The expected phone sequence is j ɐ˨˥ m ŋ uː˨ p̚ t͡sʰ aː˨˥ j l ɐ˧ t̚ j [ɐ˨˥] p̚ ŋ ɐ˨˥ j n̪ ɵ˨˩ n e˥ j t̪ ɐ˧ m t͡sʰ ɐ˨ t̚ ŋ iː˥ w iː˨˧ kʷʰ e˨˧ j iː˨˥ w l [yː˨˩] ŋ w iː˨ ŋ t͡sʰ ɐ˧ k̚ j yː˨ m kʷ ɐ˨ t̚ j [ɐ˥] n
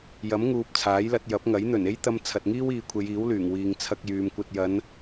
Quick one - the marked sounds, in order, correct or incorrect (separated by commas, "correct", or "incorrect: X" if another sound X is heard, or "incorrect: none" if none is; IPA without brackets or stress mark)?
correct, correct, incorrect: ɐ˨˧